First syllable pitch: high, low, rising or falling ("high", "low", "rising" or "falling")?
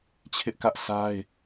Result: high